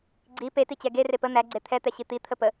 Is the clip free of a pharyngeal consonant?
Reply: yes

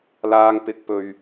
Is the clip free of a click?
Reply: yes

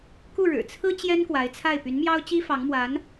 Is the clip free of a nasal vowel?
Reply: yes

